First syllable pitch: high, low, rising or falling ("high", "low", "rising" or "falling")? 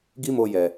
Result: high